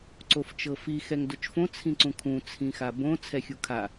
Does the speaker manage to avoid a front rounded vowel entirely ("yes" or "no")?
yes